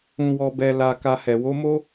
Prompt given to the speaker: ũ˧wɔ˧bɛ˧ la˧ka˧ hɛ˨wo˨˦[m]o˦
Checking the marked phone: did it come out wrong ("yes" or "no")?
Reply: no